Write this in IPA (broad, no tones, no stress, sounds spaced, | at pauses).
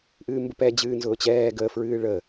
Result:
ʔ ɨː m b ə p ɛ d͡ʑ ɨː n z ʊː t͡ɕ ɛː ɡ ə f ɹ ɨː ɭ ə